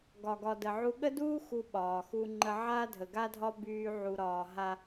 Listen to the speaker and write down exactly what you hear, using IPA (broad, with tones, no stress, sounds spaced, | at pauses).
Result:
ɡ ɒ˨ ɡ ɒ˨ d ə˨ ʕ u˦ ɠ ə˦ d uː˦ x u˦ ɓ ɒː˨ x u˦ ŋ͡ǃ ə˦ ʕ aː˦ dʱ ə˨ ɡ a˦ dʱ ɒ˦ b yː˦ ʕ u˨ ɾ ɒː˨ ɦ a˦